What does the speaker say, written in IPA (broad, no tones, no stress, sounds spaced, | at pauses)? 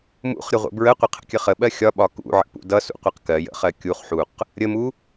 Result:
m ṵ χ ɾʲ ə ʁʷ ə̰ b ɹ ə qʷ ə qʰ ə̰ kʲ ə χ ə ɓ ɜ xʲ ɒ ɓ ɒ k ṵ ʕ ə̰ p ṵ d ʌ s ṵ qʷ ɪ q k ɜ j ə̰ χ ɜ kʲ u χ ħ u q | ɾʲ ə m u